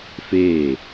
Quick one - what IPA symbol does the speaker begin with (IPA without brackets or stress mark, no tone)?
f